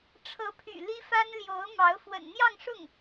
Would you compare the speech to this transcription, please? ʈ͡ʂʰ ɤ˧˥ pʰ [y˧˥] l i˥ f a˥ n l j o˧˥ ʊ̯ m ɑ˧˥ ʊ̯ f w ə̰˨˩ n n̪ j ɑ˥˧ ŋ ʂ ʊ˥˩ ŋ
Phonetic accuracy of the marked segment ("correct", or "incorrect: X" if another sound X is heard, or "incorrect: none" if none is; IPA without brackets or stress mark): incorrect: y̰˨˩